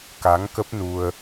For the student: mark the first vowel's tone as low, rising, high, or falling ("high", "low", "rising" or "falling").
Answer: rising